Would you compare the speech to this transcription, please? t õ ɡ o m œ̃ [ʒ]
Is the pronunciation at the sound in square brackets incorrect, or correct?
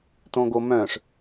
incorrect